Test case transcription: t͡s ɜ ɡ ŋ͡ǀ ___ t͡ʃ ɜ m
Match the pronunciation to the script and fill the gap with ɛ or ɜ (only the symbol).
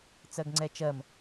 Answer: ɛ